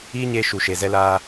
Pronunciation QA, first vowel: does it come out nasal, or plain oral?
oral